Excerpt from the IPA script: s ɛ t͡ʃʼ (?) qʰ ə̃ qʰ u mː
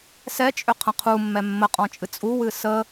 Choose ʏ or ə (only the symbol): ʏ